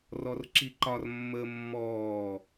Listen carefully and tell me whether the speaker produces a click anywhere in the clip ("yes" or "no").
yes